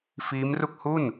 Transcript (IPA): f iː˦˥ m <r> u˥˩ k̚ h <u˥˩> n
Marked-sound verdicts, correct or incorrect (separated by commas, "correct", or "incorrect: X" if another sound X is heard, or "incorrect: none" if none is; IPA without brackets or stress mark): correct, correct